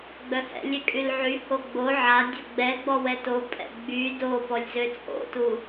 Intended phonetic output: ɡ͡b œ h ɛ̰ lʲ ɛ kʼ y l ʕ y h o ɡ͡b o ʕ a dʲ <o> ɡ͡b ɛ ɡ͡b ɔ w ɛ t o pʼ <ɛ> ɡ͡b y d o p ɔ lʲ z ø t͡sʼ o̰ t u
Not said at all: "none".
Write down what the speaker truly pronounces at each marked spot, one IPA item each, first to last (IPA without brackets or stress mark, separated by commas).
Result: o, ɛ̰